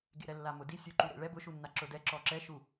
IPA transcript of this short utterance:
ɡḛɾɛlːamʊ di sʲuǃuɾḛɭɛ bʊʃunːa ǁʊdɛ ǁɔǁɛʃu

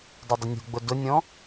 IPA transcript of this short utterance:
dˤʊdˤənʲṳɡ͡bʊ dʊnʲɔ̃

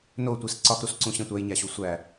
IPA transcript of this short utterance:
notʷis ǀɒxɾusǀũɕẽ tʷæjɲæɕu sʷæ

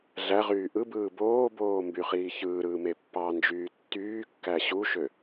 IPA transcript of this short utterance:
ɮæʁyː ʔɯbɯː boːboːmbyχiː çɯːɾɯːme pːɑnd͡ʒyː tːyːkːæ ɕuʃø

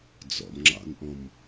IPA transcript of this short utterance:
d͡zɔ̰mŋ͡ǁɑ̰nʔɔ̃m

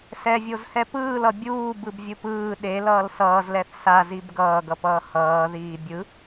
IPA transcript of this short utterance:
sɛvʲozhɛ pɯːlʌ bʲuː bɯbvʲɯpɯː ɗe lʌːlsʌːzlɛθ sazib ɡʌːɡʌpʌː hʌːðiː bʲɯ

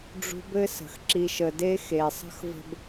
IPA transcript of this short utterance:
ɖ͡ʐṳ˧bɘ˧sə̤˨x ǁi˨ʃə˨de˧ xe˨sˤə̤˦xvə̤˦b

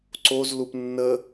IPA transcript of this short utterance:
ǀoz lupnːə

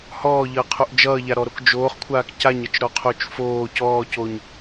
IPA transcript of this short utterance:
hɔːʎʌːqʰoʔ d͡ʒʌːʎaɾɔɾok d͡ʒoːχkʷʰaːk caɲʌt͡ʃɾɔqʰot͡ʃ foː cɔːcoɲ

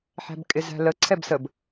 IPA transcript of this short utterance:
ħæ̤bkʼɪzæ̤lə ǀʰɛbsəb

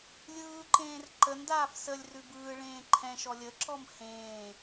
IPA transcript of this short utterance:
lʲɯːǃẽːr ǃəndaːf səlʲ rʉbɯː ɭẽːǃʰɛ̃ ʃɔlʲəǁɔm hẽː

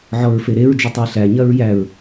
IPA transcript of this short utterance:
ʕɔɹfeɾeɹ d͡ʒʊtˤæɬæ ɲɐɹjæɹ

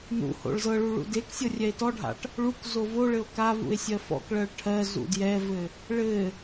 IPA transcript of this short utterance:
nṵho̰ɭ zɤɭu ɭṵdeksʲɤ rʲɛe̯tɔɖʱa̰ʈ | ɭuk zovoɭɘo̯ kavṵe̯ sʲɜfɔ̰kɭɜɭ ʈʰɜ zṵdjɛvɘ | ɭɘ

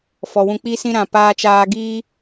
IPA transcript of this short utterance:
fɔ˨ wũ˧k͡pi˦sĩ˦ ɾã˨paː˧t͡ʃaː˧ ɡiː˧

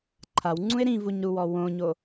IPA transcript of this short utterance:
ǃʰawŋ͡ǀũe̯ ɾĩvuɲɾuwɔ wõɲo

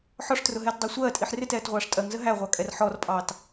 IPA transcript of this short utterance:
ħɔʂtrʊɦɛːtdˤæ sʷɜːtʼiħ rɪtɛːtʁʷɑːʂ tʼɜŋzə ɦæʁʷɑkʼɛr ħɔrpʼɑːt

